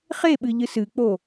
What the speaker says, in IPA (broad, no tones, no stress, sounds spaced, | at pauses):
χ e ɓ ɨ ʎ ɨ s ɨ k͡p o